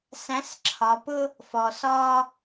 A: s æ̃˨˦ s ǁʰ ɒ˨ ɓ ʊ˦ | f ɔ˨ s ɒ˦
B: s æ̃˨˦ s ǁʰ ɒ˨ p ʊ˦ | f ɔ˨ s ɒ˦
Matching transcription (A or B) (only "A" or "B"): B